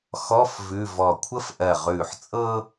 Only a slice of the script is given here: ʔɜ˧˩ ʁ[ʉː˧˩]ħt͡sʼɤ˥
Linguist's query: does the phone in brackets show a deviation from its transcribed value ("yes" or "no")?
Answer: no